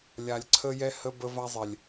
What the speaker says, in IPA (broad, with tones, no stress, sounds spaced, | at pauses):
lʲ a˨ lʲ ǀʰ ə˦ j ɛ˦ h ə˦ b ə˦ v a˦ zˤ ɛ˨ lʲ